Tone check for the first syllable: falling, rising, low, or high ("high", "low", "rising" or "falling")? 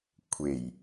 low